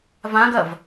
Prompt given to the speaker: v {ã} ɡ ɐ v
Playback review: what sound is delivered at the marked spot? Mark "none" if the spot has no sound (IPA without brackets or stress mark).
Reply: ã